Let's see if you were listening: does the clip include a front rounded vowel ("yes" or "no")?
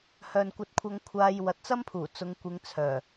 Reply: yes